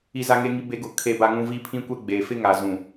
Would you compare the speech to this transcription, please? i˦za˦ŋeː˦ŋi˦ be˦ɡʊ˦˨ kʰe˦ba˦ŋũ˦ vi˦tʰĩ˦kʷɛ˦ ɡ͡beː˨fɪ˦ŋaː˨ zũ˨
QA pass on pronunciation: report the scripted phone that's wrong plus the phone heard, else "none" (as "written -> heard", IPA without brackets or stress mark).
tʰ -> pʰ